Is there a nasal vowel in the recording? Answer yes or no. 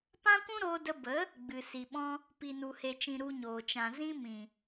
yes